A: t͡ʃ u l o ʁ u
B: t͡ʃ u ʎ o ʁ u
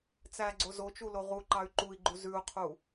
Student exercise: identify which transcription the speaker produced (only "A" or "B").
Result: A